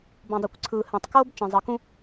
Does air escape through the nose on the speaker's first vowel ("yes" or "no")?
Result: yes